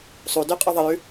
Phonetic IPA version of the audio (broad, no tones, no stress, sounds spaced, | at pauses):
sˤ u d ʉ qʼ ʉ ðˤ ə j ʉ